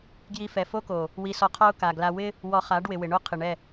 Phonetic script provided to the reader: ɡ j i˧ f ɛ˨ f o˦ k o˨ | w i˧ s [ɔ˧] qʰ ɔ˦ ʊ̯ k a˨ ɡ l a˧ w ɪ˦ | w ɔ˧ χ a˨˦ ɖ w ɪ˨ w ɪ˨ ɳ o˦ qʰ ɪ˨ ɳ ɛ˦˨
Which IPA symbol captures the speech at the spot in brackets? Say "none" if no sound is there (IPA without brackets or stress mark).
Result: ɔ˧